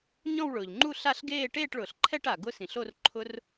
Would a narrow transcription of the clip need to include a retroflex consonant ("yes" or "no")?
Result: yes